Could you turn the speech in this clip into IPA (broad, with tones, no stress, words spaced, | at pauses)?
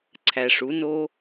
ǀʰæ˨ʂu˨˦no˦